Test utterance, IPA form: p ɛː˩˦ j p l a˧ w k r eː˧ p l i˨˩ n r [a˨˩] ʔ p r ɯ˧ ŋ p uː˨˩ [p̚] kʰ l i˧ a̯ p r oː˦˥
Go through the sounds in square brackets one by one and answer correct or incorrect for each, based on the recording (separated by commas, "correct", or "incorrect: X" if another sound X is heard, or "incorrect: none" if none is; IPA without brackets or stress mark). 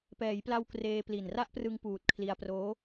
incorrect: a˥˩, incorrect: t̚